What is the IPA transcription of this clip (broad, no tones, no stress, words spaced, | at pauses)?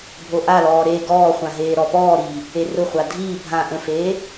bʱoʔalɔː ɾe ɡɔːχʷã ɦeːɾɔpɔːɾiː | erʊχʷa dʱiː bʱã ʔə̃feː